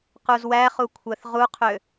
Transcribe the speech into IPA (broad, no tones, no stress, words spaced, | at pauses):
quzwæχu kʷʰæθʁuqʰø